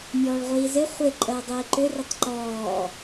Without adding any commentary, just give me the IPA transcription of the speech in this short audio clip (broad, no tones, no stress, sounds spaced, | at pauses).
mʲ ɔː ɭ ʁʷ iː z ɪ χʷ ɪ ǃʼ əː dˤ iː ǃ ʏ r ɪ tˤ ǃ ɔː